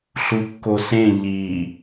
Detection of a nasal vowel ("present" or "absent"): present